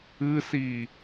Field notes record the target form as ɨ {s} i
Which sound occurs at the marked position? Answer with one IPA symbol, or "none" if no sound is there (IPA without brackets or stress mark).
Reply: s